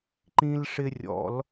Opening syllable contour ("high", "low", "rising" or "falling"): high